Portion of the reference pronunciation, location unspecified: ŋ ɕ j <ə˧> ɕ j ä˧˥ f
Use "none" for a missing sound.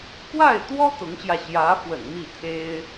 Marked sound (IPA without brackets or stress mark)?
ä˧